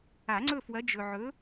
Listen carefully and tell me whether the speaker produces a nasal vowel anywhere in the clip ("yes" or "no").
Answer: no